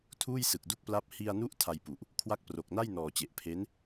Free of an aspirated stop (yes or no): no